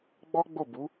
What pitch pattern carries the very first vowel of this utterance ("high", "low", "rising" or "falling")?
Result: high